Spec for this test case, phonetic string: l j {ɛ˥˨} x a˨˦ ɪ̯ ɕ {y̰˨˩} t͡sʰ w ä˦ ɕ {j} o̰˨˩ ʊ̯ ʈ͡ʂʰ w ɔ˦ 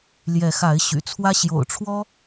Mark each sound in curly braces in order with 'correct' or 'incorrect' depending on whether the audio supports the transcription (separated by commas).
incorrect, correct, correct